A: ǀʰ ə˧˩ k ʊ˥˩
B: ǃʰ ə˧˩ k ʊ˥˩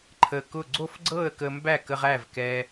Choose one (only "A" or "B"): B